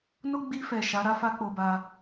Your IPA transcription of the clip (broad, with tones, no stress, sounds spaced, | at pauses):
n o˦ ɡ͡b i˧ f ɛ˨ ʃ a˨˦ ɾ a˦ f a˦ k͡p o˧ b a˧